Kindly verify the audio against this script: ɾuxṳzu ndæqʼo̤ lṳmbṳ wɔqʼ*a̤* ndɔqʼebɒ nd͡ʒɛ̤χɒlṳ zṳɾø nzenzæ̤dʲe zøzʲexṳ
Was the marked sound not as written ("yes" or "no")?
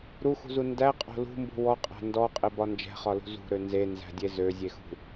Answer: yes